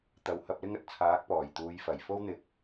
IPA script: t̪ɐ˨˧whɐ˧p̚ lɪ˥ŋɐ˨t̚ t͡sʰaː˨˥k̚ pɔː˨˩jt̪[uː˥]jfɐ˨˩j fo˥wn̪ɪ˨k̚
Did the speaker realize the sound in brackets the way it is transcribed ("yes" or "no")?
no